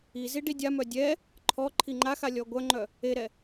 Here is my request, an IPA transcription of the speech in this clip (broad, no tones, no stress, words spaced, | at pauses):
i ziɖidʲamœ dʲɛ | ǃʰɔ ǃʰiŋ͡ǃaxa lʲɔɡʷœŋ͡ǃœ | eɾɛ